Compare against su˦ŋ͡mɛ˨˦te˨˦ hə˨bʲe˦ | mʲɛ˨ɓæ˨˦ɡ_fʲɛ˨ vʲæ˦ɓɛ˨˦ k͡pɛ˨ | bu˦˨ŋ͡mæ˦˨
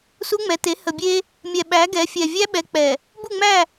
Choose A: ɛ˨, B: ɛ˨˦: B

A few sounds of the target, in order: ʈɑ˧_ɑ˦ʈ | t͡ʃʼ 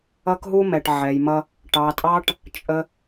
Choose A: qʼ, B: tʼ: B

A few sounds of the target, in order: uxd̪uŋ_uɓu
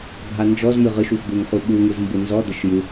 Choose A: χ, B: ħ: A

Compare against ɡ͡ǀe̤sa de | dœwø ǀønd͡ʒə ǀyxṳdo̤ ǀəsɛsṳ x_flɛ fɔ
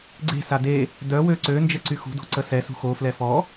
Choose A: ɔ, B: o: B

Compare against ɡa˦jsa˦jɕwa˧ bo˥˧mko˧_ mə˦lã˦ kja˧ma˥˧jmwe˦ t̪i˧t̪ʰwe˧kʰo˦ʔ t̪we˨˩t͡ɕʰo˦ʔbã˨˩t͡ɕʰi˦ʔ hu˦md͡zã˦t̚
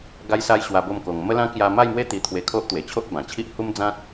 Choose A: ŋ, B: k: A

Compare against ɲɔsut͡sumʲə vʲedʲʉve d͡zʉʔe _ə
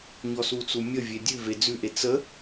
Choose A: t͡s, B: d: A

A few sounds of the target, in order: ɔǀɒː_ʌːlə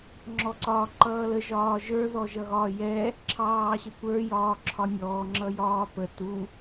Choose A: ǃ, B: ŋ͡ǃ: A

